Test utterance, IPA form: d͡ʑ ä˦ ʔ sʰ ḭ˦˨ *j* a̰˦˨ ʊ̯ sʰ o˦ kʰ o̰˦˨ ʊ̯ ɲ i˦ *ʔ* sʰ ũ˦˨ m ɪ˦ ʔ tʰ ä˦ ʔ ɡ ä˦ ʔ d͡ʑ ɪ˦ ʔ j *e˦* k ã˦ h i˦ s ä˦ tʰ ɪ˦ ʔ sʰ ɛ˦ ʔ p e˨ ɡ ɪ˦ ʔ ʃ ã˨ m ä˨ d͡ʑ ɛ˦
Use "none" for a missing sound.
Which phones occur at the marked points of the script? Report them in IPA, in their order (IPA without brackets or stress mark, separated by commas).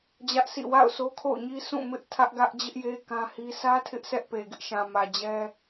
w, none, e˦